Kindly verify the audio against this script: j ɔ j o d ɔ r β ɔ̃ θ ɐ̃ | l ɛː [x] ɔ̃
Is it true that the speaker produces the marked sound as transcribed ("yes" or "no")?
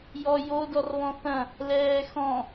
yes